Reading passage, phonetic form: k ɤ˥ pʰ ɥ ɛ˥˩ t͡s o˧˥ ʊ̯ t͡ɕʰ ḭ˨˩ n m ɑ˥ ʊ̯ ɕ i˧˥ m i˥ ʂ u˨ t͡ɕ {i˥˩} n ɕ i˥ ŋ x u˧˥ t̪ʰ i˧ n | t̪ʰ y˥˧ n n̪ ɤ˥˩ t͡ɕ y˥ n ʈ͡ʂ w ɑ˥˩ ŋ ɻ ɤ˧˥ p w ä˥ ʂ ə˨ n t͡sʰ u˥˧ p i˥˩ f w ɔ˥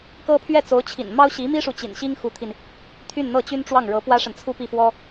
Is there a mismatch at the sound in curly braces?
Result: yes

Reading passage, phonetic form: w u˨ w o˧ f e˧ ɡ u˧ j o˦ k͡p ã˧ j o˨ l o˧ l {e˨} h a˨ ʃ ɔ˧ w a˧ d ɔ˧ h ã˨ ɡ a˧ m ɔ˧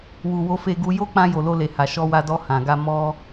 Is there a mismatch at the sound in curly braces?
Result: no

